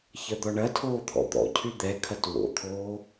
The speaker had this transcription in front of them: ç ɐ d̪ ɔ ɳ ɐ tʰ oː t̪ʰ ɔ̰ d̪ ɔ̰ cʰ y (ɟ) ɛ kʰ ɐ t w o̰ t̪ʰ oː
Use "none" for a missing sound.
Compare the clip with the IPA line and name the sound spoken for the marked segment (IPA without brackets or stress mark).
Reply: d̪